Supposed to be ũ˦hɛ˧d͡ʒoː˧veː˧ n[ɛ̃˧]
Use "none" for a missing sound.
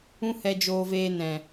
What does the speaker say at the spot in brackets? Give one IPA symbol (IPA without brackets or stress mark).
ɛ̃˨